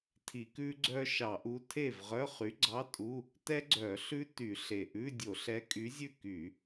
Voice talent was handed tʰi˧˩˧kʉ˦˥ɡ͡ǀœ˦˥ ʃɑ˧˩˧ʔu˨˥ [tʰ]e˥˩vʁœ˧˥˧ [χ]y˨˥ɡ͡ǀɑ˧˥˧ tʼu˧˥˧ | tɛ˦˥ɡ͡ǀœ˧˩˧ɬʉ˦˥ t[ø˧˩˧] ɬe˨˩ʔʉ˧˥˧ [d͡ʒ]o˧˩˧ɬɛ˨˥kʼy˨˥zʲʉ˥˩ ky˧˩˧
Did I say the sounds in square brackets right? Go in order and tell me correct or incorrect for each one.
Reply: correct, correct, incorrect, incorrect

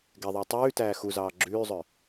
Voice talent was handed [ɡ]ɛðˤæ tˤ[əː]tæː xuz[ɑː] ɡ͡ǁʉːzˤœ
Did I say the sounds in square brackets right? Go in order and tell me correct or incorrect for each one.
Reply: correct, incorrect, correct

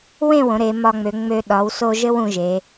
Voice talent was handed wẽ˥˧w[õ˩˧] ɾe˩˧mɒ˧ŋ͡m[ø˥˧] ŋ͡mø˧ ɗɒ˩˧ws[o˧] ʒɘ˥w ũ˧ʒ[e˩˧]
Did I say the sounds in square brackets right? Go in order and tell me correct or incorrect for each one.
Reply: correct, incorrect, correct, correct

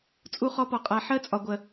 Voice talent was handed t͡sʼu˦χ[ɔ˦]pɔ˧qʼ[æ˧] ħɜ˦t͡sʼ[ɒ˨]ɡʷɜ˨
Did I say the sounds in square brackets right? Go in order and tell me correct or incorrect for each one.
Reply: correct, incorrect, correct

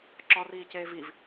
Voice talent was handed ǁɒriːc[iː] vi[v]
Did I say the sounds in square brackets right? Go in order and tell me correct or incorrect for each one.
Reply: incorrect, correct

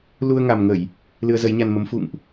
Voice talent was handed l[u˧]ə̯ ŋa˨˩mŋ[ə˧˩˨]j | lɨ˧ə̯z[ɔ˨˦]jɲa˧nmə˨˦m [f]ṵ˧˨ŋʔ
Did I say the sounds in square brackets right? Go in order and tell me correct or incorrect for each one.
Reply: correct, correct, incorrect, correct

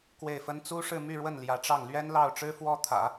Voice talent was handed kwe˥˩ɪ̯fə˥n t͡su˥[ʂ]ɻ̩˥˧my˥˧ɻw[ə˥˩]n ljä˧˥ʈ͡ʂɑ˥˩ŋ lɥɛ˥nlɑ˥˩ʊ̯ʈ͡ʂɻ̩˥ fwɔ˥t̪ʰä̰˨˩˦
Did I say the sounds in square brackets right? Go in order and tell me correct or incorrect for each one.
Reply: correct, correct

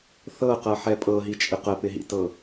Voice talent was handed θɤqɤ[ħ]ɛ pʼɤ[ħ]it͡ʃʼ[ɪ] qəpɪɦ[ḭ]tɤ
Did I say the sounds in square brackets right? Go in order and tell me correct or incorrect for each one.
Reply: correct, incorrect, correct, correct

